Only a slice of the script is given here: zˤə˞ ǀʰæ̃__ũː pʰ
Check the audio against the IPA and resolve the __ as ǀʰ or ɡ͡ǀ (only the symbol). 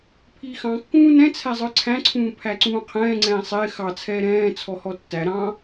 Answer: ǀʰ